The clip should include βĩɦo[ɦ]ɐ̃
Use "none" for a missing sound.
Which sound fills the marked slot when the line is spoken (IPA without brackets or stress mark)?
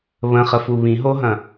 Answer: ɦ